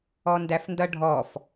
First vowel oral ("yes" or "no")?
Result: yes